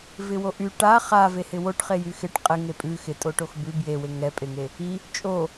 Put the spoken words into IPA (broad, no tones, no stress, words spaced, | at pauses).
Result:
vɪwoʔy ʈa χa vehɪwoʈ χejyxɪʈ qʼɪŋe pʼʉ xɪ tʼoʈoxbʉ bjewe ŋɛpʼeŋe | i | t͡ʃʼo